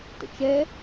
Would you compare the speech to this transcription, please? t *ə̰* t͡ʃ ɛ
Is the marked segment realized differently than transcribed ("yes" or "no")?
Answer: no